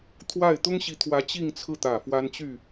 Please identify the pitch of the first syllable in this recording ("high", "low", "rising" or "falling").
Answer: falling